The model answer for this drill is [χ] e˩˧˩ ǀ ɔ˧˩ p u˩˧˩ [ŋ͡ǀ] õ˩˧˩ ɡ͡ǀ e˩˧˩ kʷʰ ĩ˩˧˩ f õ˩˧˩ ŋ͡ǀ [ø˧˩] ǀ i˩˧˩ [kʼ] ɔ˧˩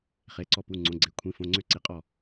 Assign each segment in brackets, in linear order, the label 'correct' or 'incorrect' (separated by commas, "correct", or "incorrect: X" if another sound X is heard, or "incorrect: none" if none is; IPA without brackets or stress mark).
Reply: correct, correct, correct, incorrect: qʼ